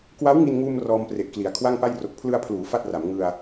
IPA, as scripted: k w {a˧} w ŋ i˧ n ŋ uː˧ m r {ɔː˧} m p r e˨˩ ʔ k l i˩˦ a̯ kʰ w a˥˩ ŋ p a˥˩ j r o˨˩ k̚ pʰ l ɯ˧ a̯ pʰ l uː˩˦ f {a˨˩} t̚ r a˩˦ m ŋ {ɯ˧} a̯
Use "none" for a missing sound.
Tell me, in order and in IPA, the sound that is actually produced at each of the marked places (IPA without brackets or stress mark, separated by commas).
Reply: a˦˥, ɔː˧, a˥˩, ɯ˧